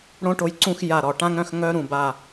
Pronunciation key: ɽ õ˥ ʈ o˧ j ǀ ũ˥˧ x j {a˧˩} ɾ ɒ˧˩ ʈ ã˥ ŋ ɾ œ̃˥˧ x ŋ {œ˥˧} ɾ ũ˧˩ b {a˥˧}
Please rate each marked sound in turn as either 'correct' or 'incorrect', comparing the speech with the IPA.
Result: correct, incorrect, incorrect

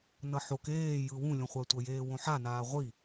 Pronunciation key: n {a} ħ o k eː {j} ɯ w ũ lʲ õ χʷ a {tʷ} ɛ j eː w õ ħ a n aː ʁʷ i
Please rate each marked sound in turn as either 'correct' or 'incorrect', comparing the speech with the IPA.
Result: incorrect, correct, correct

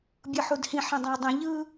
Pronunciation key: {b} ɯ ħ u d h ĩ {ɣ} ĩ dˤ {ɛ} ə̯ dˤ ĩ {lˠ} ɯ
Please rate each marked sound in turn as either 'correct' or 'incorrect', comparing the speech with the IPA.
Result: incorrect, incorrect, incorrect, incorrect

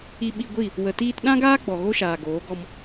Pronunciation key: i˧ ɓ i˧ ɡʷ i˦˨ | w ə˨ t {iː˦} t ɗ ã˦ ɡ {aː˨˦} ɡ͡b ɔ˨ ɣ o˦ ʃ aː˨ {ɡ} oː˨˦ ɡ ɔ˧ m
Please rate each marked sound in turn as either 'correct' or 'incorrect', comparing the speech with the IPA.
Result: incorrect, incorrect, correct

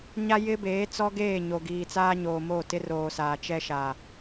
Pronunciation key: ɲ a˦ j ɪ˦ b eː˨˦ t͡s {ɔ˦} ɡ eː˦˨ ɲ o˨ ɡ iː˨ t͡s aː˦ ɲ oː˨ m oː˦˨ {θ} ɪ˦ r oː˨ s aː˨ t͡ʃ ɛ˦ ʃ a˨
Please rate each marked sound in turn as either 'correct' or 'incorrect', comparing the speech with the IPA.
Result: correct, incorrect

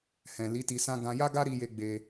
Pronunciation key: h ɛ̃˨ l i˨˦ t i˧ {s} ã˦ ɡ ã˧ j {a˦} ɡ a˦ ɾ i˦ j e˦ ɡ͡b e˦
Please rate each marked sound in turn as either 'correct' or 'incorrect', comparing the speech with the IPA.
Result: correct, correct

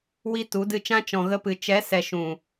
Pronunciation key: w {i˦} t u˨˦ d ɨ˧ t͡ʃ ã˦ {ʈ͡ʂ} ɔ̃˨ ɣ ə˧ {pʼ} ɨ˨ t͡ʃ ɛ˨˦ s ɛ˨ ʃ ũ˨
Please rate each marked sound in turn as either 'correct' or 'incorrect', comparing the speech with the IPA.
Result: correct, incorrect, incorrect

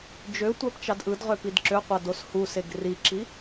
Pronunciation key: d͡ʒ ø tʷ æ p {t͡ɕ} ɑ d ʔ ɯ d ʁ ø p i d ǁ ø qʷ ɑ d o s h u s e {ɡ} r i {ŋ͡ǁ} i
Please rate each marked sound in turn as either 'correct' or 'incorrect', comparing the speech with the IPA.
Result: incorrect, correct, incorrect

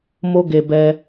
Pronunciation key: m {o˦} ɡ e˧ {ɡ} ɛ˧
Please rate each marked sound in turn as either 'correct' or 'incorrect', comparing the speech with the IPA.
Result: correct, incorrect

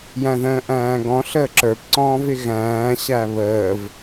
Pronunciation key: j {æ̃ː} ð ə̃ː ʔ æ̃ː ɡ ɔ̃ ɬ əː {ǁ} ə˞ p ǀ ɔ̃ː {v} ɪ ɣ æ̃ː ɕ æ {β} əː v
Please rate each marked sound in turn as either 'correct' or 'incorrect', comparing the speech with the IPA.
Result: incorrect, correct, correct, correct

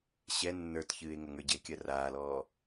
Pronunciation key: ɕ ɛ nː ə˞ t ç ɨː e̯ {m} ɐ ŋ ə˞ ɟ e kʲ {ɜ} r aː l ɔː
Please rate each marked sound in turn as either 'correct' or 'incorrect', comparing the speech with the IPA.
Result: incorrect, correct

